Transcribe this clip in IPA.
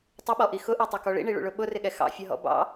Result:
tˤɪɓɔʔi xʊʔitˤʌkɔ ɭḭɳiɭṵɭʊ ɓʊrɪɠɛ xɑ̰fʲʌɦɔ̰ bɑ̰

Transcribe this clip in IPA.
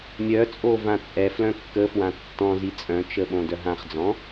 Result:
mʲœt͡sʼo vãt͡sʼɛflœ̃ kːəfwã tːɔ̃ zit͡sʼœ̃t͡ʃə ɓõdœɦãχd͡zɔ̃

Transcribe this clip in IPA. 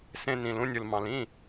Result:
sẽ˧ nĩ˩lũ˧nʲɯ˩l mɑ̃˩lĩ˥˩

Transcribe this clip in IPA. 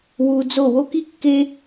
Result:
wuː˥ d͡zo˥˧ wo˥ki˥kːe˥

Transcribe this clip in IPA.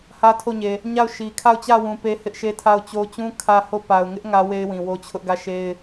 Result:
hä˦tʰo˦˨ɲe˨ | ɲa˦˨ʊ̯ʃi˨ kʰa˦˨ʊ̯t͡ɕä˦˨wũ˨ pe˦hɪ˦ʔʃe˦ tʰa˦˨ʊ̯t͡ɕo˦ t͡ɕũ˦ kʰä˦ho˦˨ pa˨ʊ̯ŋɪ˦ʔ ŋä˦we˦ɪ̯wĩ˨ wo˦t͡ɕʰʊ˦ʔɡä˦˨ʃe˦ɪ̯

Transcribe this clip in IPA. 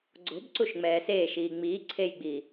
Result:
ɡ͡ǀo̤bǀuʃ ŋ͡mɛːseːʃiː ŋ͡miː ǀʰejɡ͡biː

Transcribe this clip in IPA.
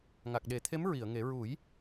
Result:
ŋa˨˩k̚ɗe˨˩˦t̪ʰe˧˥m ɹi˨˩˨ə̯ŋe˨˩˦ ɹu˨˩˦j

